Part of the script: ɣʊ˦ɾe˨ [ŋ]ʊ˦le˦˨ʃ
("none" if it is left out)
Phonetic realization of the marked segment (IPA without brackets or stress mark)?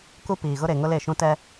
ŋ